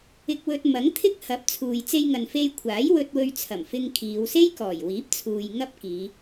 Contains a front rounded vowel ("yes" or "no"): no